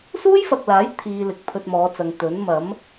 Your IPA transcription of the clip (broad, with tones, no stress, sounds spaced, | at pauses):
s uː˥ j f ɐ˨ k̚ l aː˨˥ j t̪ʰ iː˨ l ɪ˨ k̚ pʰ ɵ˧ t̚ m ɔː˨˧ t͡s ɐ˨ ŋ t̪ ɵ˨˥ n m ɐ˨˥ m